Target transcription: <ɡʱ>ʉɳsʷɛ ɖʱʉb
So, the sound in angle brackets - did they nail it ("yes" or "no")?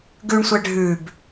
no